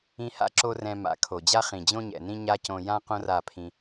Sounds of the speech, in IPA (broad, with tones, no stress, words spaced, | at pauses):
ĩ˧ha̰˦ǁo˧ rɛ̃˧ ma̰˨˦kʰo˨d͡ʑa˦ χĩ˨d͡ʑõ˦ɲɛ̰˨nĩ˦ ɲa˦cõ˧ jã˦ qõ˦ra˦˨pʰĩ˧